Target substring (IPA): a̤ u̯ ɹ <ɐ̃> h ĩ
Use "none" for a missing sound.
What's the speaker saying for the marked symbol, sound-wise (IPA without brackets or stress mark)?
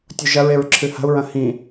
ɐ̃